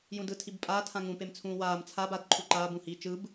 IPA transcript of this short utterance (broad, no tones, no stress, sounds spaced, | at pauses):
j ũ d ɯ tʰ i b pʼ aː tʰ ã ŋ ũ p e m t͡sʰ ũː w aː m t͡sʰ a b a d ǃʰ u ǃ aː b ũ h iː t͡ʃ ɯ b